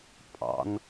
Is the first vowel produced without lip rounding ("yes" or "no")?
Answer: yes